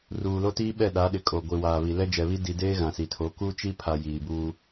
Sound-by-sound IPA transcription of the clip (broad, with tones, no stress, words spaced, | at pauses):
ruː˨lo˦tiː˦ɓɛ˦˨ ɗa˨˦ɗɪ˨kʼo˨ ɡʷi˨waː˨βi˨ lɛ˦d͡ʒɛ˨βi˦ di˨deː˦ ɣã˨si˨tʰo˨˦ ku˦t͡ʃi˦pʰa˨ jiː˨buː˦